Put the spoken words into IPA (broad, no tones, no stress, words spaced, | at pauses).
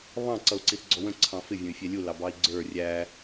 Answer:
βɑ̃ ǀʌu̯ǀiθɡ͡ǀɔwə̃ ǀʰɑ̃fɪ vʲə̃y̯fʲɛlʲu lɑbɑi̯ɡ͡ǀə˞ rʲæ